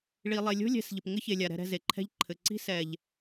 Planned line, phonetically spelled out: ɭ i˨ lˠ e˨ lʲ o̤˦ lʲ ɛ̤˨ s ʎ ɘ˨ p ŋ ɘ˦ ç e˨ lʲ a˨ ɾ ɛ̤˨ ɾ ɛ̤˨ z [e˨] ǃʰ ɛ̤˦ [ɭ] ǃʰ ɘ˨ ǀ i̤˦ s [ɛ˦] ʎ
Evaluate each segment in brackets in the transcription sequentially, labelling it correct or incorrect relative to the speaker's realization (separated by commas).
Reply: correct, incorrect, incorrect